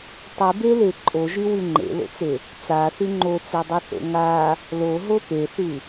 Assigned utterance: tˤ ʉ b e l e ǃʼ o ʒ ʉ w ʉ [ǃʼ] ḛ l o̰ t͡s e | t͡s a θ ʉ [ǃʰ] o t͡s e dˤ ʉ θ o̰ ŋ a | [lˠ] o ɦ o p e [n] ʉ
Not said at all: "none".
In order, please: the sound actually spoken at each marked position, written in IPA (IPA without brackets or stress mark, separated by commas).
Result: ŋ͡ǃ, ŋ͡ǃ, l, θ